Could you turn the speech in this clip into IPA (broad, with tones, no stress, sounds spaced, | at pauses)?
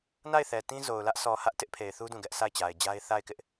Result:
n a˦˨ ɪ̯ θ ɛ˨ t ĩ˦ z o˨ ʊ̯ l ä˦ ʔ sʰ ɔ˨ h ä˦ ʔ t ɪ˦ ʔ pʰ e˨ ɪ̯ θ u˦ d ũ˦˨ ɡ ɛ˦ ʔ s a˦˨ ɪ̯ t͡ɕ a˨ ɪ̯ d͡ʑ a˦ ɪ̯ θ a˦˨ ɪ̯ k ɪ˦ ʔ